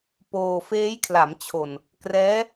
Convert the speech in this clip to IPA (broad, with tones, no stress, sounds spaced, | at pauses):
p oː˧ f eː˦˥ j kʰ l a˩˦ m t͡ɕʰ o˨˩ n | k r ɛː˦˥